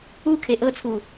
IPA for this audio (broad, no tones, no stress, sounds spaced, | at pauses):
u kʰ e ʔ ɤ t͡sʰ u